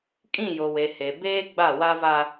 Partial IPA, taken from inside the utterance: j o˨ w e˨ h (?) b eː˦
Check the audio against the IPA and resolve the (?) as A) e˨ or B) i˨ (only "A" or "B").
A